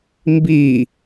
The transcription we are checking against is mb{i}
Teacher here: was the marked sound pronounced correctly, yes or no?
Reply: yes